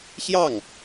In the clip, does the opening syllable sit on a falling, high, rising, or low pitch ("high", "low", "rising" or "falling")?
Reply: falling